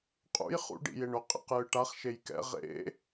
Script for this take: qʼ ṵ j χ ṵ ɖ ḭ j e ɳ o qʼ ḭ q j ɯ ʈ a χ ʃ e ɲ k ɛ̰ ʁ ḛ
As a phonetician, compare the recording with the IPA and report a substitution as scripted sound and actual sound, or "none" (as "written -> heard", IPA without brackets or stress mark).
ɲ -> j